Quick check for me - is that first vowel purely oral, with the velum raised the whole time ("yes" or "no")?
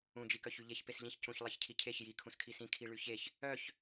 no